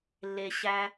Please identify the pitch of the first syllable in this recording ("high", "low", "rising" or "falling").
low